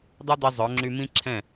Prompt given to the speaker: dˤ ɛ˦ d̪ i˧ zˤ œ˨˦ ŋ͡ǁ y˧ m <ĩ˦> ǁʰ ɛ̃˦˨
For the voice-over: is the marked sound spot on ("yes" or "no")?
yes